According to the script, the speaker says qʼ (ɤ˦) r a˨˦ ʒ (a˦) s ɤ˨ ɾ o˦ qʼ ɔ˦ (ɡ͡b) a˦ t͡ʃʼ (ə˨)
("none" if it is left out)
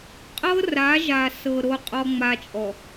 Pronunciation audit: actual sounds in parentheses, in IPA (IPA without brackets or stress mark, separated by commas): ɤ˦, a˨, ŋ͡m, ɔ˨